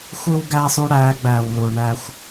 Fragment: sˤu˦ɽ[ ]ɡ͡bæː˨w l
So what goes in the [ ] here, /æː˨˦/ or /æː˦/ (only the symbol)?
æː˨˦